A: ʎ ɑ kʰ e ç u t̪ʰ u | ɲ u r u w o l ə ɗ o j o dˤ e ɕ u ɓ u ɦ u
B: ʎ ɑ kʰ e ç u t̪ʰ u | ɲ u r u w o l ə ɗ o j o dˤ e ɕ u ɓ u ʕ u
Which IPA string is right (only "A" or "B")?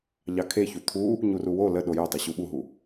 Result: A